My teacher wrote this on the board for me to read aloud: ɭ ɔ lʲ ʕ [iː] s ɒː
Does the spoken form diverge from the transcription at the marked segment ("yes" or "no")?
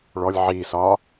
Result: no